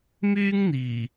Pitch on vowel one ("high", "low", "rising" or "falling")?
high